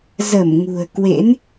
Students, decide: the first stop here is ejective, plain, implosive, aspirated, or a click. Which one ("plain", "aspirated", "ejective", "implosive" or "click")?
plain